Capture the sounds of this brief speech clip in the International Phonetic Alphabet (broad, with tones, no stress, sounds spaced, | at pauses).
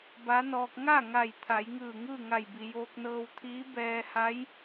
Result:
b a˧˥ n ɔː˧ k̚ ŋ a˥˨ ŋ a˧˩ j t̪ʰ a˩˧ j ŋ ɯː˧˩ ŋ ɯː˥˨ ŋ a˧˩ j b i˩ j oː˧ k̚ n ɤː˧ w t̪ʰ iː˧˥ b ɛː˧ h a˧˥ j